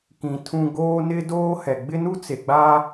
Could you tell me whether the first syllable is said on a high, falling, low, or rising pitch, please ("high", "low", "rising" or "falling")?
low